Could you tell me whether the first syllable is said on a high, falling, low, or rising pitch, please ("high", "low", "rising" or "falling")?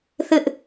high